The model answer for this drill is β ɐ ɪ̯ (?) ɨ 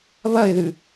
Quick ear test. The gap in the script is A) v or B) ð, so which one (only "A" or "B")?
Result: B